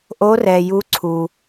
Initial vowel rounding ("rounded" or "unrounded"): rounded